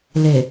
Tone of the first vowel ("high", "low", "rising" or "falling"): low